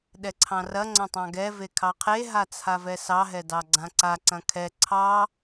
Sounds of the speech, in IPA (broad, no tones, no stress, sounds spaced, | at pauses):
ɗ ɛ ǀʰ ɑ̃ r ɐ ŋ͡ǀ ɐ̃ tˤ ɑ̃ ɡ ɛ v e kʰ ɑ qʰ e ɦ a t͡sʰ a v ɛ s ɑ ɦ ɛ d ɑ ɡ͡ǀ ã ǀ a ǀ ɐ̃ kʰ ɛ ǀʰ ɑ